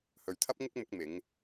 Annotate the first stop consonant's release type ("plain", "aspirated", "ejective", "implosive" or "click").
aspirated